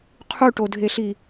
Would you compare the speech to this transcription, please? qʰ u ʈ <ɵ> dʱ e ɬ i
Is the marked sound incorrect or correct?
incorrect